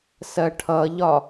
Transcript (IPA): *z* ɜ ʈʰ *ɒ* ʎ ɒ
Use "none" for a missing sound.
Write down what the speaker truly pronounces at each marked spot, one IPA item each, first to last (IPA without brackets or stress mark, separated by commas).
s, ʌ